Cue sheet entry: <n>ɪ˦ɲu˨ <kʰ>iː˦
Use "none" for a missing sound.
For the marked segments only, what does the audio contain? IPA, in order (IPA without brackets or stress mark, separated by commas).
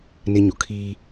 n, kʰ